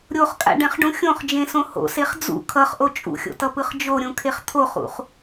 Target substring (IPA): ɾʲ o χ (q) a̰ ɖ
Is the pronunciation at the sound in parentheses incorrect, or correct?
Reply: incorrect: kʼ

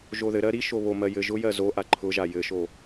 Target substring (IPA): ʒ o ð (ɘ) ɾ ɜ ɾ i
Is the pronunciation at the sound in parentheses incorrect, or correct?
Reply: correct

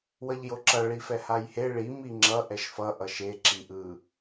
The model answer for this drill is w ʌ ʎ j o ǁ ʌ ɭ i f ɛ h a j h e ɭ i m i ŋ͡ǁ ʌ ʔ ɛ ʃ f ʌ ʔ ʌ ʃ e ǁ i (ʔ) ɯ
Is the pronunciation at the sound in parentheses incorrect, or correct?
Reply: correct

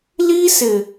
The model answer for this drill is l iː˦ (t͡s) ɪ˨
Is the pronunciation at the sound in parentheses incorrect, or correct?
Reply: incorrect: s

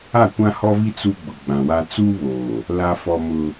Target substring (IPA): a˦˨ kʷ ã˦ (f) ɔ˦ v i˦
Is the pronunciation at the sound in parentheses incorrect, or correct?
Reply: incorrect: h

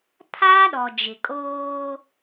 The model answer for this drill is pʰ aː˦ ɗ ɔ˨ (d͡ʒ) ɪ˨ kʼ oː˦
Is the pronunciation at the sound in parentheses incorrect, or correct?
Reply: correct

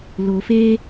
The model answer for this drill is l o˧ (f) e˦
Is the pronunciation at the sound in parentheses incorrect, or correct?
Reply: correct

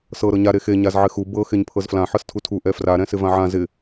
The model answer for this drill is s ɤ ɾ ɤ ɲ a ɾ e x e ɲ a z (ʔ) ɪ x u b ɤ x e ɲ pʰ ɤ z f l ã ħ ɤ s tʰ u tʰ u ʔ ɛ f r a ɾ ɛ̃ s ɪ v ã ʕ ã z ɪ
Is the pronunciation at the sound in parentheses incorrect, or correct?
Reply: incorrect: ʕ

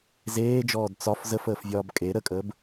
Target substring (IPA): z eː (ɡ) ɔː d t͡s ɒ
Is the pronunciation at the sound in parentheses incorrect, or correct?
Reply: incorrect: d͡ʒ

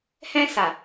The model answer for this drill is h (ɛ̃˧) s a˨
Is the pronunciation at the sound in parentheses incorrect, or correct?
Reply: correct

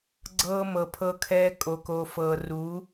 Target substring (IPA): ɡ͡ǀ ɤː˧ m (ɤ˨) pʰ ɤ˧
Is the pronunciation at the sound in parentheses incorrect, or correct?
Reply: correct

